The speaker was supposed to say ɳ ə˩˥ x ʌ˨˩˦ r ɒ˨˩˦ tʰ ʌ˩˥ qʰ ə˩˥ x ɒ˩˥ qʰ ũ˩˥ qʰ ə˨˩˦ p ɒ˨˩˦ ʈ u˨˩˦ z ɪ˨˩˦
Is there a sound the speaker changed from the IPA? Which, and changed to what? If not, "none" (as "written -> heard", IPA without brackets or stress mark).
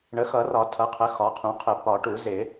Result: none